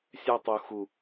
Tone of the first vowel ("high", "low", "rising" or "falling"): high